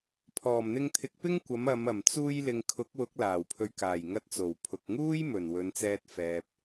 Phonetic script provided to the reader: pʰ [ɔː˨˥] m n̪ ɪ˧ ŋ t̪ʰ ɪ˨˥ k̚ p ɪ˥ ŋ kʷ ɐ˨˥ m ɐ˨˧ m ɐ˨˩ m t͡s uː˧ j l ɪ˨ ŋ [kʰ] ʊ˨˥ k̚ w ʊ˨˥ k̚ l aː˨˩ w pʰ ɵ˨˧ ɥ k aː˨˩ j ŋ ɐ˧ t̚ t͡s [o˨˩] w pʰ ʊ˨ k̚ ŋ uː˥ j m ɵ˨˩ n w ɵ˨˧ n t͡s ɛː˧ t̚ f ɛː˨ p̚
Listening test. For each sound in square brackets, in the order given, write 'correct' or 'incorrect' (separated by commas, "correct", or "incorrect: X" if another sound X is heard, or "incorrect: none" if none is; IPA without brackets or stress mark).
incorrect: ɔː˨˩, correct, correct